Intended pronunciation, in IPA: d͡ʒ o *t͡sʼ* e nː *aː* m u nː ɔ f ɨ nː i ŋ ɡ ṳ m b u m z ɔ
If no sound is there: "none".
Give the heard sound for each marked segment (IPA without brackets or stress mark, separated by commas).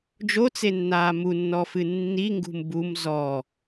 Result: t͡s, aː